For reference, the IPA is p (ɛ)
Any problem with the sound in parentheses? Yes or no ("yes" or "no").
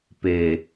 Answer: yes